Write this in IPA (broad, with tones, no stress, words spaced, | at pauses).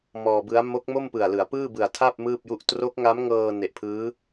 mɔː˧ bɯ˦˥a̯ mo˦˥k̚mo˥˩mpɯ˨˩a̯ lɯ˩˦a̯pɯː˥˩bɯ˨˩a̯ tʰa˥˩p̚ mɯː˥˩p̚ju˥˩ʔ tro˦˥k̚ŋa˦˥mŋɤː˧ ne˨˩ʔpʰɯː˦˥